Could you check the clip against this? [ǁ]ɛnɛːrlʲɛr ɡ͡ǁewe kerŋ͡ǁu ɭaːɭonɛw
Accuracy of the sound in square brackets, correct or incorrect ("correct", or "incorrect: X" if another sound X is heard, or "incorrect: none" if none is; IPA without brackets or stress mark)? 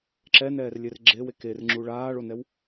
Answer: correct